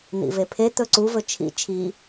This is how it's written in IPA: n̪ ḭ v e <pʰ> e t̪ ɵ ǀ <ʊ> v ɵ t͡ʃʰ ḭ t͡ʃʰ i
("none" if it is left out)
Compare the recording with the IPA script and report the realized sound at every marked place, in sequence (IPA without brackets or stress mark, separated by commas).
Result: pʰ, u